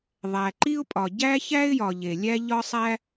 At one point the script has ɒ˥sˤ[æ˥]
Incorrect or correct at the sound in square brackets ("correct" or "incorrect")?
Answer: correct